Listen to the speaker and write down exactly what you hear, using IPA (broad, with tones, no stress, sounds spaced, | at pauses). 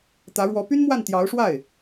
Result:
t̪ ä˧˥ ɻ w ɔ˧˥ p y˥ n m w a˥˩ n t̪ j ɑ˧˥ ʊ̯ ʂ w a˥˩ ɪ̯